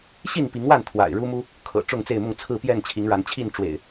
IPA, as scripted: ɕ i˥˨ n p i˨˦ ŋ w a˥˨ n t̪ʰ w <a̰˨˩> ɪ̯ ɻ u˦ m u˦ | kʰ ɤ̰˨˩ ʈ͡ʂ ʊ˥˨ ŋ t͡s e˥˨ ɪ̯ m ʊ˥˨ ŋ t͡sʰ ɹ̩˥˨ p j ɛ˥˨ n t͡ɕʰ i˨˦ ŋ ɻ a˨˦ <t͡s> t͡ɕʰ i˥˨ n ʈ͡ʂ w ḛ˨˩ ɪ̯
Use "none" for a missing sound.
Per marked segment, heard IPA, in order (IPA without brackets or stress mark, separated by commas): a̰˨˩, n